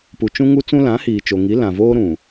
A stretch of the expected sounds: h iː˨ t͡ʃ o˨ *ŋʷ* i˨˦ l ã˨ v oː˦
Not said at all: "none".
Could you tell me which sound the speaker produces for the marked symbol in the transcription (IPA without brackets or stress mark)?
ŋ